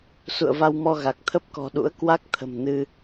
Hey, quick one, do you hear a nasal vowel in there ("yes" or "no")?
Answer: no